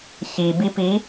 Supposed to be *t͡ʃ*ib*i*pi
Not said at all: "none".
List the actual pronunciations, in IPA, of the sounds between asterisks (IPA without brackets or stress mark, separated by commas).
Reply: ç, i